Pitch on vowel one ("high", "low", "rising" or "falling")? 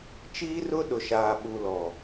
high